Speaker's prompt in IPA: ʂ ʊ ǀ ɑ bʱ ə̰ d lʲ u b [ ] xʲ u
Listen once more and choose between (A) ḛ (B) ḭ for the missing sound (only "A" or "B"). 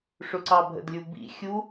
B